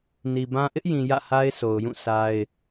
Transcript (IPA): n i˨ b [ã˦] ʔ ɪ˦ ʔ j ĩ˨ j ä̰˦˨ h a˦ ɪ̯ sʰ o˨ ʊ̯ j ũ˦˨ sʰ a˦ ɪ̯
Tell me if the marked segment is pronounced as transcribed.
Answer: yes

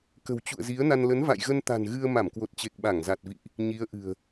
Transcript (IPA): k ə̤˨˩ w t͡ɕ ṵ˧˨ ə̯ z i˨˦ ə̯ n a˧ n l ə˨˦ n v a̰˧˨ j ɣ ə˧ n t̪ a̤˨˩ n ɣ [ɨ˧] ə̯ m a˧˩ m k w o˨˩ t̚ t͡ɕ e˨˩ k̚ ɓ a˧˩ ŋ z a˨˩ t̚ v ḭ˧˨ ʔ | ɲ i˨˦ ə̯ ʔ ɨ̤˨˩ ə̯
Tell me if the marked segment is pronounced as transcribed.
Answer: yes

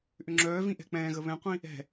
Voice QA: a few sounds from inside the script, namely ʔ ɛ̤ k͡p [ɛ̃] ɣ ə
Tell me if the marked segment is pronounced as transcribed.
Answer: no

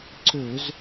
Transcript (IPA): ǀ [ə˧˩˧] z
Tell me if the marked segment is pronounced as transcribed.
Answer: no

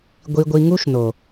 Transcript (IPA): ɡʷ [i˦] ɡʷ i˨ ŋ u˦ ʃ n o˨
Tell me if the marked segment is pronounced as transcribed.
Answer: no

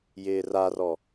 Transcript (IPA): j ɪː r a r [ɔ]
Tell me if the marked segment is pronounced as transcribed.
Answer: yes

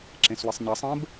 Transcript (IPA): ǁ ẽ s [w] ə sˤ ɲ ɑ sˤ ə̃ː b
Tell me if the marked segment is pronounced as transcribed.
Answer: yes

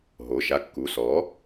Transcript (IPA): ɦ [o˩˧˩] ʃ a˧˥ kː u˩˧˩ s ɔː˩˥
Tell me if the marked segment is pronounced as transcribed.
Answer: yes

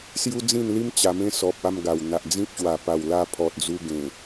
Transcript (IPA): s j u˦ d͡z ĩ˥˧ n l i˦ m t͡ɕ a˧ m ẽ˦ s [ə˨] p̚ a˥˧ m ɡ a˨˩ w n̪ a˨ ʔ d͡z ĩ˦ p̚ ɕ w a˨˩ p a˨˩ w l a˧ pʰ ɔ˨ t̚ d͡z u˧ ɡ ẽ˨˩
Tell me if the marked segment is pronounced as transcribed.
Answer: no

